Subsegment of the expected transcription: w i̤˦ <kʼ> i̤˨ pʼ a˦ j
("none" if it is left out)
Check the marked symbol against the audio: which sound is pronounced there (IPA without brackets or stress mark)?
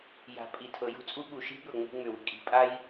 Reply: kʼ